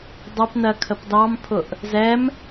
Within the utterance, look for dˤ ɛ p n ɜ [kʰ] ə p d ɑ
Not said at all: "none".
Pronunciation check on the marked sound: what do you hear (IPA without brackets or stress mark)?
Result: kʰ